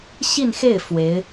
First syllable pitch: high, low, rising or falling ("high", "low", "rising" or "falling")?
falling